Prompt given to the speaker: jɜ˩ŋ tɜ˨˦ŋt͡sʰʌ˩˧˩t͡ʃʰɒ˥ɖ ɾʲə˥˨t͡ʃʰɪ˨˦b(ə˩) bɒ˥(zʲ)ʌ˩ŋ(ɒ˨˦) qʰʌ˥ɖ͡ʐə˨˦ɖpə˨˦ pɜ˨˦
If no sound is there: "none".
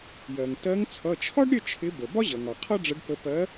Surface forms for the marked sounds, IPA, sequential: ə˩, ʑ, ɒ˩

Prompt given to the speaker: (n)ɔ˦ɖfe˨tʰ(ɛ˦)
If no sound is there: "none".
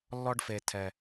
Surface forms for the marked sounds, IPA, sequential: lː, ɛ˨

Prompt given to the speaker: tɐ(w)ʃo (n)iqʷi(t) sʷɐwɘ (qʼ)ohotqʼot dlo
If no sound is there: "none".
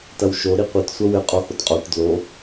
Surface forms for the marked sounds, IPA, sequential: w, ɾ, t, qʼ

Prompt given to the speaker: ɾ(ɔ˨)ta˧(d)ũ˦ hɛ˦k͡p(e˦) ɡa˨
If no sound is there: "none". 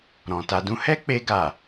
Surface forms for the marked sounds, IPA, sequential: ɔ̃˨, d, e˧

